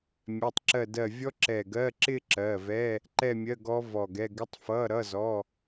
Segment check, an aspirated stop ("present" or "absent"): absent